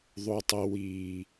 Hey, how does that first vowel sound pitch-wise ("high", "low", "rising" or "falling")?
low